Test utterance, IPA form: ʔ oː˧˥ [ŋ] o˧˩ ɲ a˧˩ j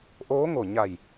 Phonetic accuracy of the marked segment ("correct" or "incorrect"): correct